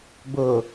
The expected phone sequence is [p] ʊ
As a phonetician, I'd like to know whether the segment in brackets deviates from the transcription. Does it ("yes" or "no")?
yes